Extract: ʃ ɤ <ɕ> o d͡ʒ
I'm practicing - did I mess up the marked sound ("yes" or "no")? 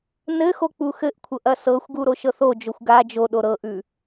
yes